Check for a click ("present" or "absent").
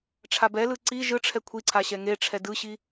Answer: present